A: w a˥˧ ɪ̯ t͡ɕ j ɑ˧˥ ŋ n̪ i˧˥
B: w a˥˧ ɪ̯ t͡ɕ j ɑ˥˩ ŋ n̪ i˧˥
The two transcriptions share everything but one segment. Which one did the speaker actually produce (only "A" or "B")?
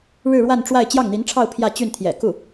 B